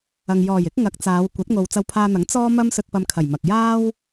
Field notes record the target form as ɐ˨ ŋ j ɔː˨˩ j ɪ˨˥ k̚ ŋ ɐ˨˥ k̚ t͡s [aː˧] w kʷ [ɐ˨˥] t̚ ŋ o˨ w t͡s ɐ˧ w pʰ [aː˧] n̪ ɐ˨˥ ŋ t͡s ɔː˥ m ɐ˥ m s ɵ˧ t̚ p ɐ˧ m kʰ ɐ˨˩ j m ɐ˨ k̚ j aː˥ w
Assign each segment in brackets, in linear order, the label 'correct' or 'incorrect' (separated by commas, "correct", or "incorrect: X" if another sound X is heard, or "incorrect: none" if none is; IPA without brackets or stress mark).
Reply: incorrect: aː˨˧, correct, correct